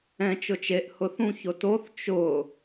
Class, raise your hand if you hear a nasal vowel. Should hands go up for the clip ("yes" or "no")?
yes